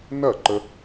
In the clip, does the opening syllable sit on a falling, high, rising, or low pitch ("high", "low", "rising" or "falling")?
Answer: falling